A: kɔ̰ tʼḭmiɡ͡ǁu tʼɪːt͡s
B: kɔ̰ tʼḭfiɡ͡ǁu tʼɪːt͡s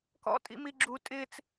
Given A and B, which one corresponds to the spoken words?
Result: A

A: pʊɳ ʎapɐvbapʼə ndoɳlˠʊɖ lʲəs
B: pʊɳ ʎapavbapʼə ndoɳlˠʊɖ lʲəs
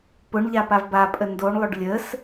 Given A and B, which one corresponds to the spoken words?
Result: B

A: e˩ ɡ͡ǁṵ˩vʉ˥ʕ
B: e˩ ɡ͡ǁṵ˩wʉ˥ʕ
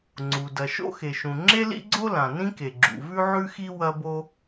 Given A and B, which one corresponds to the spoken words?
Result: A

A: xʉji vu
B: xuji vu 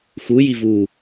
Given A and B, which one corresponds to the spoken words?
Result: B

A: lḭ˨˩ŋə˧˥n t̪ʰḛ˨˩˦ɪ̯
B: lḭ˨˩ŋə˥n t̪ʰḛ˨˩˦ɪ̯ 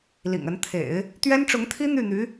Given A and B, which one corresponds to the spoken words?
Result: A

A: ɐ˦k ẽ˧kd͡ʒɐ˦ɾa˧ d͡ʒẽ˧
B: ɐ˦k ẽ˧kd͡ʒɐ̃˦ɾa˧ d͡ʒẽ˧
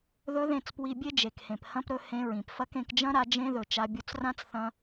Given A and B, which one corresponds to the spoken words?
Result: B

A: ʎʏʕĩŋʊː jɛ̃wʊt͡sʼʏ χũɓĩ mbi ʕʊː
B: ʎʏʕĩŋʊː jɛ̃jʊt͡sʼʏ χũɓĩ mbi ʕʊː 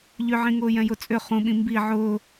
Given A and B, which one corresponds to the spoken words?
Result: B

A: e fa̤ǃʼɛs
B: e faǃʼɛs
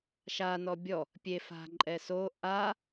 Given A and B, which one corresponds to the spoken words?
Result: A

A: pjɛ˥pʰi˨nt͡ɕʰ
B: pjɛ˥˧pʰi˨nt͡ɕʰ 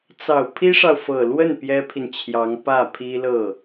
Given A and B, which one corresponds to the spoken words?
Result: A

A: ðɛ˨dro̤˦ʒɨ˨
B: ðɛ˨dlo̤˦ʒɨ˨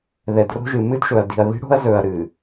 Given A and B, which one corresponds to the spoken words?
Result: A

